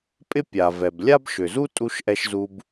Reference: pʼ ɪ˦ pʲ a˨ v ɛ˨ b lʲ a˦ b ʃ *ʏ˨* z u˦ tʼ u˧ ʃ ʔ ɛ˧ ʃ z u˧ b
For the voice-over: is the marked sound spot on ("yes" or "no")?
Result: yes